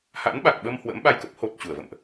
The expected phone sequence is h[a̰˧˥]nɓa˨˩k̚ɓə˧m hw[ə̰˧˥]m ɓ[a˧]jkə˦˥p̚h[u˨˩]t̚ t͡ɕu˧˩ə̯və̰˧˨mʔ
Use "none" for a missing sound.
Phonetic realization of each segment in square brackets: a̰˧˥, ə̰˧˥, a˧, o˨˩

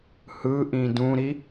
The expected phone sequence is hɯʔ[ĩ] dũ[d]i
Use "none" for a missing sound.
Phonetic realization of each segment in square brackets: ĩ, ɾ

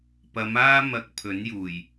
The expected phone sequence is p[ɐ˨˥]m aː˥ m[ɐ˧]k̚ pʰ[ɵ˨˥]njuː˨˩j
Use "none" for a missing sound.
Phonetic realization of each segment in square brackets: ɐ˨˧, ɐ˧, ɵ˨˥

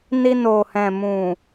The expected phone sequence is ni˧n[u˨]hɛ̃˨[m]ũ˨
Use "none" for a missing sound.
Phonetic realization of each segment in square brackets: o˨, m

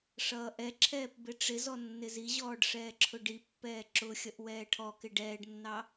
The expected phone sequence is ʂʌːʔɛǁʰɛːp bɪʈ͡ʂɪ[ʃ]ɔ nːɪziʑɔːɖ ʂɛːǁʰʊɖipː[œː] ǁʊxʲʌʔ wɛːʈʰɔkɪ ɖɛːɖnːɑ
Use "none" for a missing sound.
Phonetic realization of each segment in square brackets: z, ɛː

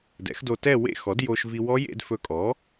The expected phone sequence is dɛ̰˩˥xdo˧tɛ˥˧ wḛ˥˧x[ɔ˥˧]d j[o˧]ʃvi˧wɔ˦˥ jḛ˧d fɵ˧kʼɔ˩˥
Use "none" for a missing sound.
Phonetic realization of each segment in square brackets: ɔ˩˥, o˧

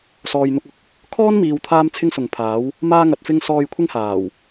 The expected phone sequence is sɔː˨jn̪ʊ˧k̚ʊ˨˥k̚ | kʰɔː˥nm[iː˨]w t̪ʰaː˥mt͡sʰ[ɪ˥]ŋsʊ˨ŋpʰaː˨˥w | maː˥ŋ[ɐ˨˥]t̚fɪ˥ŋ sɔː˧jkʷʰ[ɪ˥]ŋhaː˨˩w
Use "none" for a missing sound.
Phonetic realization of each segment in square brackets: iː˨, ɪ˥, ɐ˨˥, ɪ˥

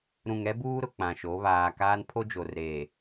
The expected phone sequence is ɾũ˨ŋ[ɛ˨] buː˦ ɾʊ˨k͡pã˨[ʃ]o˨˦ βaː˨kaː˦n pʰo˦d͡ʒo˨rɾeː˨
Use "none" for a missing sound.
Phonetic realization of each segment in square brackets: ɛ˦, ʃ

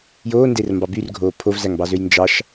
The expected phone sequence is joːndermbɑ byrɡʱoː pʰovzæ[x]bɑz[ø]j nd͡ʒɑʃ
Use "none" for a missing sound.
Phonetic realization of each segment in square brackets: ŋ, ø

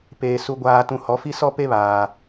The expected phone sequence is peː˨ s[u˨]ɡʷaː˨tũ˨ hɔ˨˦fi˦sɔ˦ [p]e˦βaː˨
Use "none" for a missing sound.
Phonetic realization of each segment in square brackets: u˨, p

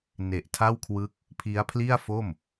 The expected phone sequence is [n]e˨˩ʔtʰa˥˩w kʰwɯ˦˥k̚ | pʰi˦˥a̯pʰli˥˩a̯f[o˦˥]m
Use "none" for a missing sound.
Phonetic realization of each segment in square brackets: n, o˥˩

